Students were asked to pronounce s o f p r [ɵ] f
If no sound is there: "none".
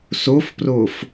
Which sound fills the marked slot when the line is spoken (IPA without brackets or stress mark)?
o